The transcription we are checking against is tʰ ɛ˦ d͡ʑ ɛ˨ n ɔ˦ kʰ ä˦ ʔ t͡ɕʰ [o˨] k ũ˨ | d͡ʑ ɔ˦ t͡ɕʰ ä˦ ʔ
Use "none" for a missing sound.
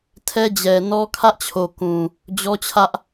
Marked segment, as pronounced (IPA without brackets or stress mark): o˨